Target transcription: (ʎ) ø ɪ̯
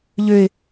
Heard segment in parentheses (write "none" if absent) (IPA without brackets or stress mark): ʎ